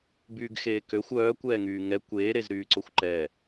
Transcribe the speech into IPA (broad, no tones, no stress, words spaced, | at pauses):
byːɡxeːkøxʷ œː kʷɛːŋyːŋɛ kʷeː ɾezɾyːǀoxʷǃɛ